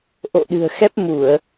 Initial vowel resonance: oral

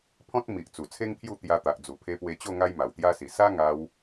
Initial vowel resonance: nasal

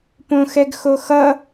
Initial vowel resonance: nasal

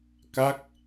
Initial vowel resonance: oral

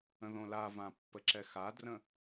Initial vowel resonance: nasal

